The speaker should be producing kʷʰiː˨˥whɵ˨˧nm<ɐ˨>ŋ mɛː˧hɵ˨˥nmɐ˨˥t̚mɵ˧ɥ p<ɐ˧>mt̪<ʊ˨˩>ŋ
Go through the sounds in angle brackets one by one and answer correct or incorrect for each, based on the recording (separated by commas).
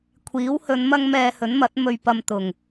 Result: incorrect, correct, correct